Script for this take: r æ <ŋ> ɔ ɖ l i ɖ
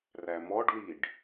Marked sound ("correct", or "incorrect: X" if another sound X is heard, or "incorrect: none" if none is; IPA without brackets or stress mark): incorrect: m